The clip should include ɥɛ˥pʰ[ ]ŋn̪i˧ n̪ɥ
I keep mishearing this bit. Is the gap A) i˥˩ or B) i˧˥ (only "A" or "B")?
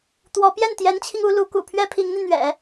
B